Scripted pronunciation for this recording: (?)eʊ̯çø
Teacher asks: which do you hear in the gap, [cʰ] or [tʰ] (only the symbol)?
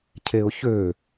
cʰ